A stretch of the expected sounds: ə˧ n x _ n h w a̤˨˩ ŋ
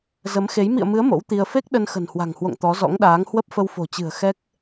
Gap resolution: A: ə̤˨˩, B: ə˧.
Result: A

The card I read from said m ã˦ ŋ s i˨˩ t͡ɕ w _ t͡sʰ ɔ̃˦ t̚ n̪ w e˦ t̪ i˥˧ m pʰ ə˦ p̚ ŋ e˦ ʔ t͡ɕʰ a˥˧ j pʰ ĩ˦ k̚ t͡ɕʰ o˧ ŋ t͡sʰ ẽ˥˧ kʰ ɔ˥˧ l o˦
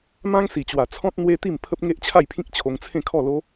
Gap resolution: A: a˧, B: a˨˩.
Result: B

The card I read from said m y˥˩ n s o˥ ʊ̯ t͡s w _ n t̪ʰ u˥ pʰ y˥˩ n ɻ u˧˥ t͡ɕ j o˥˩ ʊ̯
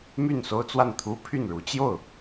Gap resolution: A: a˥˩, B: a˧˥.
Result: A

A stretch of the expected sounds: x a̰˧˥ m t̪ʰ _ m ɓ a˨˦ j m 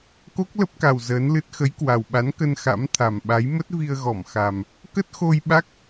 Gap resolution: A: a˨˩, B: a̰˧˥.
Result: A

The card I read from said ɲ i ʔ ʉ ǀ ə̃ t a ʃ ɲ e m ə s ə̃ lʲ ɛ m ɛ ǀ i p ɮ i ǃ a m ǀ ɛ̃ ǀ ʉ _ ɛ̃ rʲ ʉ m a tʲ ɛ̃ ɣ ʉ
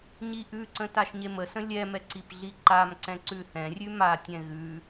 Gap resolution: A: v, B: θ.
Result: B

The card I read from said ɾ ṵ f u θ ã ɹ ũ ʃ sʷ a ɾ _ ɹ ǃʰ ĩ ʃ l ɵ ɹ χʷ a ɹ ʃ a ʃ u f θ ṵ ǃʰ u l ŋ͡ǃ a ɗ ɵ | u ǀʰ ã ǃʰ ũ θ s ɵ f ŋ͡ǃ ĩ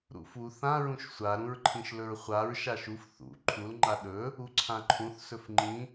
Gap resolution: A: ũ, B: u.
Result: A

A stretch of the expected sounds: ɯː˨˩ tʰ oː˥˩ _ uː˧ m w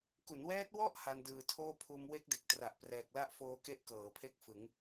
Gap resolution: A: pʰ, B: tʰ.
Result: A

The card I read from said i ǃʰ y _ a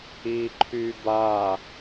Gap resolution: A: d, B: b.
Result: B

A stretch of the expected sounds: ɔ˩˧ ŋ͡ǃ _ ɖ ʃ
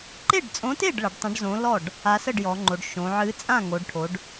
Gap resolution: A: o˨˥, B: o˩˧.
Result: B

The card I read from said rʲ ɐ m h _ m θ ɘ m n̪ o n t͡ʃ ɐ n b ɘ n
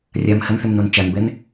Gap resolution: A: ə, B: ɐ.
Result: A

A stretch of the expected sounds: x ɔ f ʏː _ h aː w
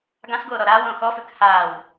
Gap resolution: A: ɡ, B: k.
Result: B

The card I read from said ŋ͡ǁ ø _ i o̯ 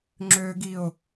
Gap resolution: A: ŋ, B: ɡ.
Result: B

